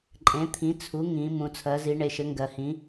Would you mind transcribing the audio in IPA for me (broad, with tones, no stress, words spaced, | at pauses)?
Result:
ǃʼẽ˩˥t̪ʰĩ˩˥t͡sʰu˩˥ ŋĩ˩˧ mũ˩˧t͡sʰɜ˩˥zi˩˥ ɳe˩˧ʃɘ˩˥ŋɡɜ˩˧hĩ˩˥